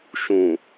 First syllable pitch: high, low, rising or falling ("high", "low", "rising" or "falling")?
low